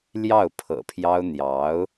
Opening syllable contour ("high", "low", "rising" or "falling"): falling